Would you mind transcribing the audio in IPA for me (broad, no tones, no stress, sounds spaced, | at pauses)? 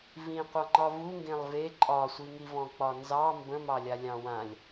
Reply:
v ĩ qʷ ɑ ŋ͡ǃ ɒ v u ŋ ɡ ẽ lˠ v e ǃʼ ɒ sʷ i ŋ i v ɔ̃ k͡p ɒ n z ɑ m b ə̃ m ɑ lʲ a lʲ ɑ̃ w ã lʲ